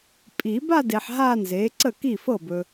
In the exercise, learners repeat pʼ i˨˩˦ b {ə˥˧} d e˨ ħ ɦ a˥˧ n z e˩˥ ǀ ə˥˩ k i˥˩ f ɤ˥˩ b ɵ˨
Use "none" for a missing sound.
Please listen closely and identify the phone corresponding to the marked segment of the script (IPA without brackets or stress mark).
a˥˧